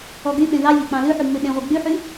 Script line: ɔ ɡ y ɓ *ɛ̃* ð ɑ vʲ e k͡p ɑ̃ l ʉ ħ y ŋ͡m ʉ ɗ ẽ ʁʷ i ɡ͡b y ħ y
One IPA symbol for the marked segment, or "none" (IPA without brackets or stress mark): ẽ